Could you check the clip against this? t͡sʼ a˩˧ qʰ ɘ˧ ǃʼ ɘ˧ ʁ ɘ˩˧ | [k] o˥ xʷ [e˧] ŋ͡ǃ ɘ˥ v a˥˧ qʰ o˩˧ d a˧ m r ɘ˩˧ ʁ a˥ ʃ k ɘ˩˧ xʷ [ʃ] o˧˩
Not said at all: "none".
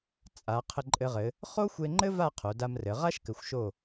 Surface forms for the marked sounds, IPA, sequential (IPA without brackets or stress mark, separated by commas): χ, e˧, ʃ